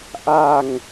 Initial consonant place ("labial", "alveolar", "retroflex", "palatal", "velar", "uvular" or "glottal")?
glottal